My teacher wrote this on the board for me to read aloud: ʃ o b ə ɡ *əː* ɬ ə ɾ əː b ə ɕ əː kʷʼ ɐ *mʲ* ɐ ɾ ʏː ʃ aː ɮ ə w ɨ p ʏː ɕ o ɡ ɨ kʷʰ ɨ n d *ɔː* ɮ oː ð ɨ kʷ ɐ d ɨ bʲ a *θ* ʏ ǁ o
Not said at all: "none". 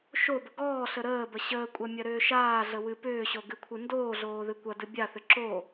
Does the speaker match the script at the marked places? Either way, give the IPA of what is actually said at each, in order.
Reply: ɔː, mʲ, oː, θ

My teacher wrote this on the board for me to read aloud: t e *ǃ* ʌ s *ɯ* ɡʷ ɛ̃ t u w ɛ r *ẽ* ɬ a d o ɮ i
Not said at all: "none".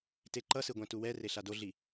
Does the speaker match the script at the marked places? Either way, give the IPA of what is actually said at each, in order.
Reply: ǃ, ɯ, e

